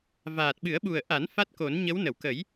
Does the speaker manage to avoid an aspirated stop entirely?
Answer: yes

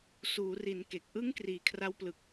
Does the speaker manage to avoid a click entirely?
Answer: yes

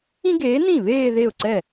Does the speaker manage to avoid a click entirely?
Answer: no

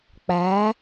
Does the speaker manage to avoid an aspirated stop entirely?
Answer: yes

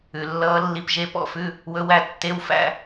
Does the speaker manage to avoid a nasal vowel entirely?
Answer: yes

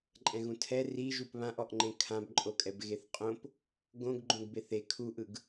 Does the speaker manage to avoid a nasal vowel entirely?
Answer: no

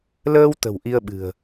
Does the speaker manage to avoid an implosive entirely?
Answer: no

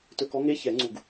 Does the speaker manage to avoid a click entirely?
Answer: no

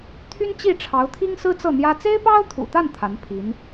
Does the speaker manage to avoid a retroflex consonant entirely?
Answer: no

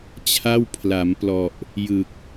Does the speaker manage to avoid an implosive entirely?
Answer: yes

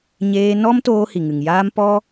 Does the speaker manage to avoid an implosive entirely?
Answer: yes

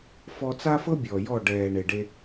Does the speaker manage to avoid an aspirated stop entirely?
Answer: yes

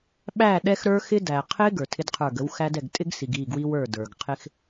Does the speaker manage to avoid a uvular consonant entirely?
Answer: no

